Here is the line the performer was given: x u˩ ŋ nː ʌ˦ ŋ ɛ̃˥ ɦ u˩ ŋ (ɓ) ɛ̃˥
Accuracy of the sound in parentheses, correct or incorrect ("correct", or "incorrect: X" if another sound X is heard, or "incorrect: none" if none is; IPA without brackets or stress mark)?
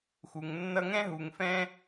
incorrect: f